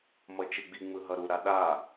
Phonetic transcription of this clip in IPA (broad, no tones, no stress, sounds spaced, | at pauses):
m ʌ t͡ʃ e ɡ͡b i ŋ͡m ɯ ɦ ʌ ɾ u ɾ a ɗ a